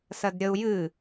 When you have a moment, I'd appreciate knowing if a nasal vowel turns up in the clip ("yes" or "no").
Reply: no